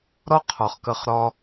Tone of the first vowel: high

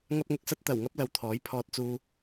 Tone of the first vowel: high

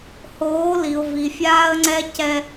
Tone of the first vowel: rising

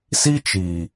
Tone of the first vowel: high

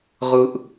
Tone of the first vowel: low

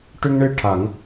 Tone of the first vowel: high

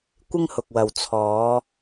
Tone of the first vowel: high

